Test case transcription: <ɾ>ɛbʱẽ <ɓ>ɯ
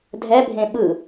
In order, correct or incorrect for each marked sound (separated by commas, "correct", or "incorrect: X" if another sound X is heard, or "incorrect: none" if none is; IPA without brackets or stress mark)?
incorrect: dʱ, correct